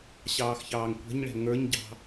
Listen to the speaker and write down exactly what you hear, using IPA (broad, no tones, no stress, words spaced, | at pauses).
ɕɑːxçɑːŋkʷɛ̤ɲɭɛ̤ ŋə˞ɲɟɑ̤